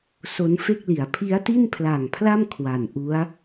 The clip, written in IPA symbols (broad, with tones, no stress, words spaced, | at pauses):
so˦˥nfe˥˩k̚li˩˦a̯ pʰi˦˥a̯ti˥˩npʰla˨˩ŋpʰla˥˩m kʰwa˨˩nʔu˦˥a̯